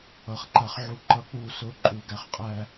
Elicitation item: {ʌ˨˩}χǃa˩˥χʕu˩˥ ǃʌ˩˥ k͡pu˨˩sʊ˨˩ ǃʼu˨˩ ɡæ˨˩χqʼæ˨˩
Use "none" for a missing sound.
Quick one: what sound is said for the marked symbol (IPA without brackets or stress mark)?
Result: ʌ˨˩